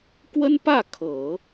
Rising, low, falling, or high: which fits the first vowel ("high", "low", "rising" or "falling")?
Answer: high